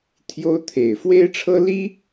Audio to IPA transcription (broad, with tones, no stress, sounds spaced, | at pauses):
t̪ʰ j o˥ ʊ̯ t̪ʰ e˨˩ ɪ̯ f w e˥ ɪ̯ ʈ͡ʂʰ ɤ˥ l i˥